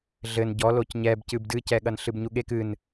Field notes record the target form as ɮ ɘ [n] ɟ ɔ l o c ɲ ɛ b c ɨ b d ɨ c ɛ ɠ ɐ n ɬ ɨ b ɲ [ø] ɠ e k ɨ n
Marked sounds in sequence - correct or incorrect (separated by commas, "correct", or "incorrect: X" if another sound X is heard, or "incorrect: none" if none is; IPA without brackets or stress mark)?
correct, incorrect: u